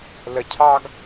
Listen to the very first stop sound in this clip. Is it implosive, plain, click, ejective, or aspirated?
aspirated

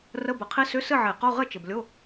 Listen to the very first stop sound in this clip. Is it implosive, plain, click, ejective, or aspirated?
plain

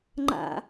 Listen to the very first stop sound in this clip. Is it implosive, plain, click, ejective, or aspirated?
click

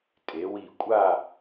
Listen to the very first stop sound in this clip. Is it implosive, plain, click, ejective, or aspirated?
ejective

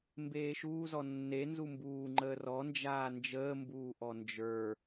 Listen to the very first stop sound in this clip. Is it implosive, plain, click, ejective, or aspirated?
plain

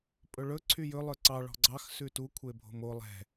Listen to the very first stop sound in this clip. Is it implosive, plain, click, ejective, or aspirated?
ejective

